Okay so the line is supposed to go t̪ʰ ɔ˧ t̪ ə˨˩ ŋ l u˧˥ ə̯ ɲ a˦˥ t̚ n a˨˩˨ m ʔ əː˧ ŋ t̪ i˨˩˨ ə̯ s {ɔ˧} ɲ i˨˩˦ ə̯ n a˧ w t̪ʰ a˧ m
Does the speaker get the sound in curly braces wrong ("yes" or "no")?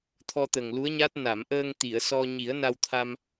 no